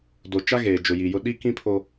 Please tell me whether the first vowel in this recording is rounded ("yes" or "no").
yes